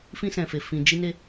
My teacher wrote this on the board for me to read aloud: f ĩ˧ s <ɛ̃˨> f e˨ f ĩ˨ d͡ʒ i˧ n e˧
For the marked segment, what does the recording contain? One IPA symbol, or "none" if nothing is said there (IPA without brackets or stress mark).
ɛ̃˨